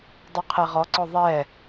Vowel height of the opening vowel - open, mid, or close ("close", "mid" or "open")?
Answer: close